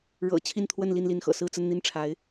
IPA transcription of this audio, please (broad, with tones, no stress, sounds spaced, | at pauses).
ɻ ɤ̰˨˩ t͡ɕʰ i˥˧ n t̪ʰ w ə˥˧ n l i˥˧ n l i˥˩ n x ɤ̰˨˩ s ɹ̩˥˧ t͡s ə˥˧ n n̪ i˥˩ n ʈ͡ʂʰ a˧˥ ɪ̯